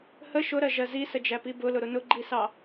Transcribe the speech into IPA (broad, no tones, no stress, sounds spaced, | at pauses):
h ə ʃ ʊ ɾ ɜ ʒ ɜ z i s ə d͡ʒ æ p i b ʊ l ʊ ɾ ʊ n ʊ ɡ͡ǃ i s ɑ